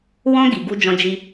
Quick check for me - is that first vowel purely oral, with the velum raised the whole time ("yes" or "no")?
no